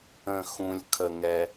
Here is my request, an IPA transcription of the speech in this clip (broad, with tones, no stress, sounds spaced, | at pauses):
ə̃˨˩ x ũ˨˩ lʲ kʰ ə˨˩ ŋ ɛ˧